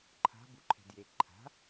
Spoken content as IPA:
ǃʰ a̤ b u ǃʰ ɛ̤ d j e ǃʰ a̤

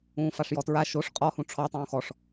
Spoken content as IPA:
ũː f a ʂ j ɔ t ɹ a ʃ o ʂ qʼ ɔ h ũ ʈ͡ʂʰ ɔ tˤ ũː x ɔ ʂ

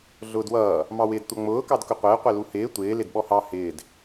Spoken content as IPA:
ɮ ʊː d w ʌː | m ɑ w ɪː d tʷ ʌ ŋ͡m ʊː k ɑ d k ʊ qʷ ɪː qʷ ɛ l u h ɪː tʷ ɪː l ɪ d ɓ ɔ h ɑ h ɪː d

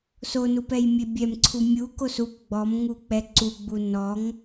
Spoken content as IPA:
s o n u p ɛ j mʲ e bʲ ɛ m ǀʰ u mʲ u k o s u p ɡ͡b ɔ m ŋ u k͡p ɛ ǀ u ɡ͡b u n ɔ ŋ

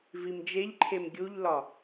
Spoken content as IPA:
v i m d͡ʒ e ʎ ǃʰ e m ɡʲ u ʎ l ɒ

